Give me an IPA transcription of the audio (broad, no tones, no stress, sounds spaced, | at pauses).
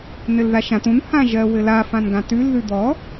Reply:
n ɘ l ð a ʃ ã t ũ n h ã ʒ ɜ w ɘ l a f ã n ɡ ã t ʉ l ð ʉ d̪ ɔ